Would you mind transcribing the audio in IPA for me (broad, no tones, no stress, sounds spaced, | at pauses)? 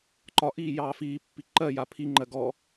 ǃ ɒ ʔ iː j ɑː f iː pː i ǃ ɜ j a pʰ i ŋ͡ǃ ɜ ɡ ɔ